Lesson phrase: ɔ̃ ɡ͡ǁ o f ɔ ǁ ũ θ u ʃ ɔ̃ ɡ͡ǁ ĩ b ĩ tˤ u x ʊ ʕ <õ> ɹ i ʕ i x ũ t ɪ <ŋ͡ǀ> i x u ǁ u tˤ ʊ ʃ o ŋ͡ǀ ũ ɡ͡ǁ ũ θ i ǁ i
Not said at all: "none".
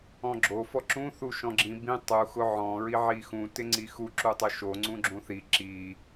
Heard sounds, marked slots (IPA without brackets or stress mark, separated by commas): ɔ̃, ŋ͡ǀ